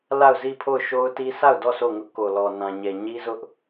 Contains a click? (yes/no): no